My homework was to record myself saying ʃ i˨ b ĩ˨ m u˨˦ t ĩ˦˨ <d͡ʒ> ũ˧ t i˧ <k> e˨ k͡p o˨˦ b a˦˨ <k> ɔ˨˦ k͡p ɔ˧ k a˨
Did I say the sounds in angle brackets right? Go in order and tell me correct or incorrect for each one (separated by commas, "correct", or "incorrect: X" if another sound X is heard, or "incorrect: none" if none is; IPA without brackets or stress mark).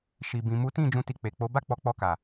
correct, incorrect: k͡p, incorrect: k͡p